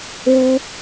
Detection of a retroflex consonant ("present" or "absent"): absent